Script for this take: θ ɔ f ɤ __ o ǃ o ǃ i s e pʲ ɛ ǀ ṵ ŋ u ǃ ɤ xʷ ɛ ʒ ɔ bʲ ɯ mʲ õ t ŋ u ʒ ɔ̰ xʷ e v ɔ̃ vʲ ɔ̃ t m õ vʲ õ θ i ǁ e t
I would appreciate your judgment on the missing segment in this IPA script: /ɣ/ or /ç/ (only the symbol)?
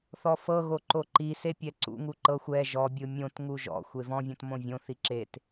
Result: ɣ